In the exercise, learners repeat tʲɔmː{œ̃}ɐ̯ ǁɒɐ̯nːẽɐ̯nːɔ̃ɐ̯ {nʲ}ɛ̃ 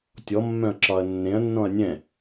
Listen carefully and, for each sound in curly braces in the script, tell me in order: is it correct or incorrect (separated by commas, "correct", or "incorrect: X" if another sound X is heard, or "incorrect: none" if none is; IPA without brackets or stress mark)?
correct, correct